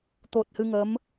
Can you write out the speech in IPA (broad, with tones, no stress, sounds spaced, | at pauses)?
t̪ o˨˩ t̚ h ɨ˧ ŋ ə˧˥ m